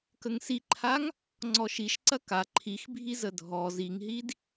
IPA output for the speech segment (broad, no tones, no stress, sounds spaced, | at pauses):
k ə ŋ s i ǃʰ a ŋ | ŋ͡ǀ ɔ ʃ i ʃ ǀ ɐ k a ǃʰ i x bʱ i z ə dʱ ɔ z i ŋ ɦ i d